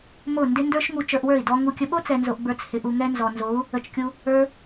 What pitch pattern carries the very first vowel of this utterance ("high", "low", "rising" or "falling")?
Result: falling